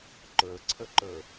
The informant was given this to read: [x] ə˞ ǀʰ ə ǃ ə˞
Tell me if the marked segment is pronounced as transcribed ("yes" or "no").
no